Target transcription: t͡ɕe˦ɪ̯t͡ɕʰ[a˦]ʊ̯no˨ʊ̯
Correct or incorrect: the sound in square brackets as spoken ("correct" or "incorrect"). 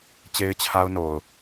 correct